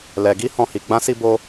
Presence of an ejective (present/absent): absent